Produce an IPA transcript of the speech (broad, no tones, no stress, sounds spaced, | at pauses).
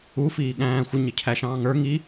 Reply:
u f iː ɠ æ̃ː xʷ ɪ ɲ ɪ cʰ æ ʃ ɑ̃ː ŋ ə˞ ŋ i